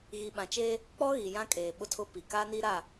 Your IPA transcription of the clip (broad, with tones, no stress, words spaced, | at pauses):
ɣi˨ɓã˨t͡ʃeː˦ | k͡pɔ˦ɣi˨ jã˦kʼeː˨ ɓʊ˦tʰʊ˦pi˨ ka˦niː˦ɾa˦˨